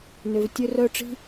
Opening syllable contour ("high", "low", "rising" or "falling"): low